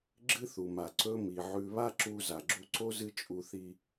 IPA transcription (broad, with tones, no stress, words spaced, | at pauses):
ɡ͡ǁɨ˥θu˩ma˩ ǀɵ˥mi˩ʕʉ˧ βa˥ǁu˧ za˩ɡ͡ǁu˧ǀo˥ zɨ˥t͡ʃʼu˧ θi˧